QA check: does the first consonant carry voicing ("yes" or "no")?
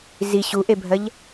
yes